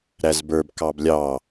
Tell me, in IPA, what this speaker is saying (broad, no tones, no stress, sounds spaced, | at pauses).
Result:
ɾ æ z b ə˞ b k ɑ b lʲ ɑ